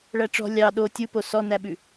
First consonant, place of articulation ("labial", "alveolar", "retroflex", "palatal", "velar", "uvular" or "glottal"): retroflex